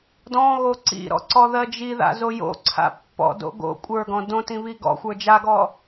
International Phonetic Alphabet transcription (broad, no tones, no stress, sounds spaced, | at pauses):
d ɔ̃ ɣ o ǀ ḭ ɾ ɔ̰ ǀ ɔ ð ɜ d͡ʒ i ð a̰ z o j o̰ ǀʰ a̰ pː ɔ̰ d o̰ ɡ o̰ kʷʼ ə˞ ɡ ɔ̃ d õ t ĩ β i ɡ ɔ̰ xʷ ə˞ d͡ʒ a ɡ ɔ